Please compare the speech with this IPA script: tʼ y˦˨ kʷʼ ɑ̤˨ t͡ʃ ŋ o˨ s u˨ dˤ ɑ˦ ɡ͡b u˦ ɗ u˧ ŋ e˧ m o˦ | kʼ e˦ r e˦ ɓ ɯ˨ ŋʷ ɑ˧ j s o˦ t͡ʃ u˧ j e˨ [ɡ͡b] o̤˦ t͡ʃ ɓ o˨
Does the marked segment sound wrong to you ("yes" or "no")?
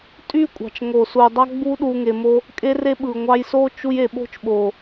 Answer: yes